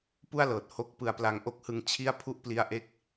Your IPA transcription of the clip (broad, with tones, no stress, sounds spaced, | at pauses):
p u˥˩ a̯ l ɤː˨˩ t̚ h o˥˩ k̚ p ɯ˧ a̯ p l a˧ ŋ ʔ o˦˥ k̚ h ɯ˧ ŋ t͡ɕʰ i˥˩ a̯ pʰ u˥˩ ʔ p l i˦˥ a̯ ʔ e˥˩ k̚